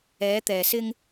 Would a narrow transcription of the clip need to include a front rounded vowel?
no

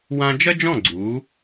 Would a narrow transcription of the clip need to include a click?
yes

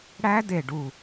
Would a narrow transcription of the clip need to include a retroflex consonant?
yes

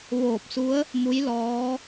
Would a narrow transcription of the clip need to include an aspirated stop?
no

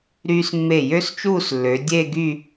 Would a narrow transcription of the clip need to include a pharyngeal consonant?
no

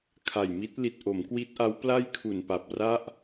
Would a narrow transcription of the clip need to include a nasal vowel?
no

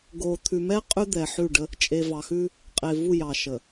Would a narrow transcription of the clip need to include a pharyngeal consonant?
yes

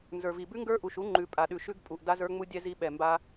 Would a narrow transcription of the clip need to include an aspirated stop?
no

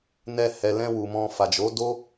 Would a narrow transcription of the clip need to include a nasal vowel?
yes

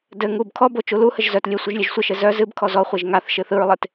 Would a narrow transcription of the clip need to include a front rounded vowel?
yes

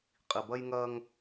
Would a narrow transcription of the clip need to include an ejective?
yes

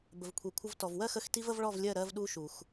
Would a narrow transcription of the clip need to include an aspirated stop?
yes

